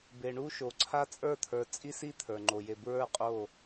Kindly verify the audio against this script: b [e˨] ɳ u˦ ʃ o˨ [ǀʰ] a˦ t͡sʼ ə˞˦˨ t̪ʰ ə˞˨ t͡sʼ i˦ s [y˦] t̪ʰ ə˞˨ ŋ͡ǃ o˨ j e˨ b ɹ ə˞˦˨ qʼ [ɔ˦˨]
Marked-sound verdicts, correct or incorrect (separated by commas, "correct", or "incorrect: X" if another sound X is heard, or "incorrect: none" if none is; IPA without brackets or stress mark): correct, correct, incorrect: i˦, incorrect: o˦˨